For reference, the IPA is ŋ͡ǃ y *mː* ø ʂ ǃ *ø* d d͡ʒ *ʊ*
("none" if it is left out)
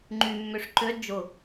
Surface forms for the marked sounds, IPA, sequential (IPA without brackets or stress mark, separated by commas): mː, ø, ʊ